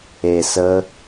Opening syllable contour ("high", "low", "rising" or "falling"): low